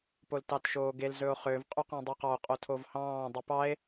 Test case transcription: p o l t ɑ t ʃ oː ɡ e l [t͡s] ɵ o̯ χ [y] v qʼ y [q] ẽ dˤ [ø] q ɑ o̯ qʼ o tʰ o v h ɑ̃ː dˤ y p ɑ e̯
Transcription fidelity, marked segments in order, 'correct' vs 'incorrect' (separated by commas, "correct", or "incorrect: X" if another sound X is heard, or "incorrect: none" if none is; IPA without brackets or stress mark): incorrect: z, incorrect: ø, correct, incorrect: y